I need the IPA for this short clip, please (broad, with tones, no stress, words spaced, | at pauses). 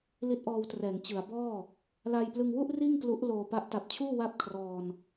li˦˥t̚ʔɔː˧wtrɛː˩˦ŋ t͡ɕɯ˩˦a̯ bɔː˥˩ | la˧jplɯ˧ŋwu˥˩ʔ riː˥˩ŋklu˦˥ʔloː˧ pa˦˥ʔta˨˩p̚t͡ɕʰuː˥˩ wa˥˩p̚kʰrɔː˧n